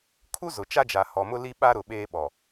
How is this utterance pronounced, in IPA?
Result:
kʰu˦zʊ˨ t͡ʃa˦d͡ʒa˨ hɔ˨mʊ˦ li˦ɓa˦ɾʊ˨ ɓeː˦ɓɔ˨

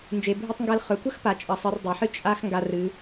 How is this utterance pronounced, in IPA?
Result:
nd͡ʒe˩bʱɨ˧tˤŋɡɐ˧lχɵ˩˧ kʷɐ˥xpa˩ t͡ʃʼɐ˩˧sˤɨ˩˧r dˤe˩ħɨ˥ t͡ʃʼa˥x ŋɡa˧ rɨ˩˧

